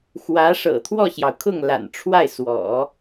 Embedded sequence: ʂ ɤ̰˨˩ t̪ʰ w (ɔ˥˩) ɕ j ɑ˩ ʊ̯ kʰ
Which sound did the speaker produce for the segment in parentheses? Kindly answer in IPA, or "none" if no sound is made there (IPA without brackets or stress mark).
ɔ˥˩